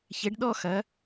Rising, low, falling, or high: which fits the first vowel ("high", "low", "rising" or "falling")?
rising